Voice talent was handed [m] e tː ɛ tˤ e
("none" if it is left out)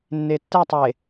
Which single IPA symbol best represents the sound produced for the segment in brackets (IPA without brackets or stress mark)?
nː